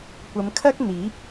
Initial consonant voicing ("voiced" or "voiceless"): voiceless